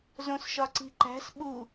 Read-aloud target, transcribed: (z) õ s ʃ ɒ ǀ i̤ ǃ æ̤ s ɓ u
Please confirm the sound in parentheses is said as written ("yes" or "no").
yes